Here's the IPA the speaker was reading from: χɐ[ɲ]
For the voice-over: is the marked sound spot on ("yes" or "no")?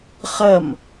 no